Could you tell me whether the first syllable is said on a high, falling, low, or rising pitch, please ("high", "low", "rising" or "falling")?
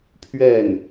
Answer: falling